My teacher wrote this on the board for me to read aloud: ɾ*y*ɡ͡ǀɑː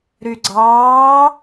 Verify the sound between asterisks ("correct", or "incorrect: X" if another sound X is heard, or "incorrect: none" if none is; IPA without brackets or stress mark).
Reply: correct